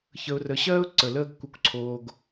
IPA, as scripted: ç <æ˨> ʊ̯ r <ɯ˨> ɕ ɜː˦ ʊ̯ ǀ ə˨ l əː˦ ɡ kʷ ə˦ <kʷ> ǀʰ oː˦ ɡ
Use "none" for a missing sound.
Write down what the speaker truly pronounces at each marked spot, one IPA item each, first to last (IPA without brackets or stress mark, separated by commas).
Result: ə˨, ə˨, kʷ